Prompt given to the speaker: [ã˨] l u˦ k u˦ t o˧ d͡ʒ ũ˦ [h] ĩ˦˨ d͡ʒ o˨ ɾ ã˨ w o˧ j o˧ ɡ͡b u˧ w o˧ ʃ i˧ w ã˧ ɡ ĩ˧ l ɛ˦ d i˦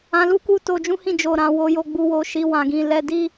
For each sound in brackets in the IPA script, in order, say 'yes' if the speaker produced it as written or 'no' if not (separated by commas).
no, yes